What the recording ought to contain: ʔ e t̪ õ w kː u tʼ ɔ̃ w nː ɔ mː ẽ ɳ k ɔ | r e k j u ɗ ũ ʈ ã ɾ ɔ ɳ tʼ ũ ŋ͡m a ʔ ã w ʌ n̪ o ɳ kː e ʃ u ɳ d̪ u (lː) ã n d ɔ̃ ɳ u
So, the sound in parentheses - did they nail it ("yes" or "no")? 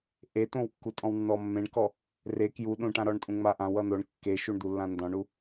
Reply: yes